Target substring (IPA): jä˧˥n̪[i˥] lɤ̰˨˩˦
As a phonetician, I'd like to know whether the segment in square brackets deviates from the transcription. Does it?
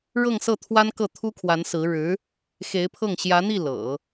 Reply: yes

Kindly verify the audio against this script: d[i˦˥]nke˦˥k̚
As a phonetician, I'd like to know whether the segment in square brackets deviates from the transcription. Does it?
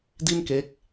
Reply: yes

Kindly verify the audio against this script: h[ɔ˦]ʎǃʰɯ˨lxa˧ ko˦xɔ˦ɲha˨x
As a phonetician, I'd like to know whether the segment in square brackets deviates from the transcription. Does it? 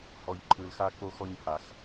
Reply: yes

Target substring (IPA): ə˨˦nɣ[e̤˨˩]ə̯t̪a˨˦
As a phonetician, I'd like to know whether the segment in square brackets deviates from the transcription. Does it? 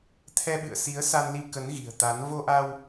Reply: yes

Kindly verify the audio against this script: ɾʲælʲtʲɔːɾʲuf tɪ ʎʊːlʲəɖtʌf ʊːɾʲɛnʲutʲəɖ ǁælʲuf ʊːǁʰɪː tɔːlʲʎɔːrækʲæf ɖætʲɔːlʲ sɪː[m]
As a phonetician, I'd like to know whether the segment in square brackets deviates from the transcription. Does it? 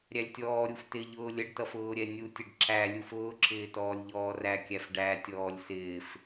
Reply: yes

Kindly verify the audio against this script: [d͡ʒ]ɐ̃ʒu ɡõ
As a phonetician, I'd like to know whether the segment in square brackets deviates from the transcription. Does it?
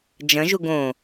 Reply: no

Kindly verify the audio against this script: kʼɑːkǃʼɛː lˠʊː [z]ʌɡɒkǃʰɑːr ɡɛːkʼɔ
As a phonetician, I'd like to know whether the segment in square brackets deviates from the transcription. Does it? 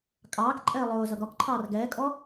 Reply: no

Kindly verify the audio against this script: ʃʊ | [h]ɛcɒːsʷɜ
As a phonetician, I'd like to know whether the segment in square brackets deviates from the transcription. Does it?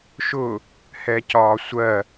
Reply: no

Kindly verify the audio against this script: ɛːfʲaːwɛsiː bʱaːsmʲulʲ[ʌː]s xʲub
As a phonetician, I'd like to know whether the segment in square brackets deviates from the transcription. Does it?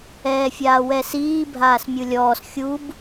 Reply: yes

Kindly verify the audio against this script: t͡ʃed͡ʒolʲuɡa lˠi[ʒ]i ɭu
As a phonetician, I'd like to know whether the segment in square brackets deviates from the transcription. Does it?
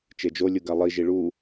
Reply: no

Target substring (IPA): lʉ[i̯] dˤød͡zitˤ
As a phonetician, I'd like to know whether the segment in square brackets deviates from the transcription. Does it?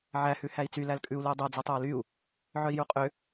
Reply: no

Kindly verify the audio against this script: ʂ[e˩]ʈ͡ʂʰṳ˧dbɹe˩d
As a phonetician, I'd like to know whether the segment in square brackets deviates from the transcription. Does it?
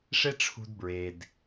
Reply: yes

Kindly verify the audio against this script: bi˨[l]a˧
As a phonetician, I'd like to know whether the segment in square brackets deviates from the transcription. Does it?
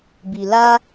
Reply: no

